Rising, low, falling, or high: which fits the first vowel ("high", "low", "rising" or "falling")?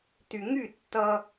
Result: low